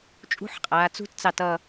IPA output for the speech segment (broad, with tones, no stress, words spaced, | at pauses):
t͡ʃʼṳ˦˥ħqʼaː˩˧ t͡sṳ˦˥tt͡sɑ˧˩tʌ˧˩